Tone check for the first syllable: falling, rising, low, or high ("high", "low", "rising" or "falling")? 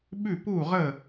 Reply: falling